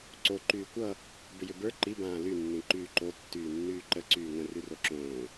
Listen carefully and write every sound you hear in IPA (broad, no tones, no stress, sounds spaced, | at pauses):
ǀ o ǃ yː kʷ ʌ | b ʏ j ʏ b ə˞ ǃ i b ãː l y nː ĩ ǃ yː ǃ o tː yː nː yː ǃ ə ǀ yː ŋ ə̃ r y r o ǁ õː